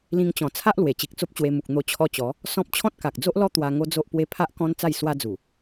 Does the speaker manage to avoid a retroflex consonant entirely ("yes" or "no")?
yes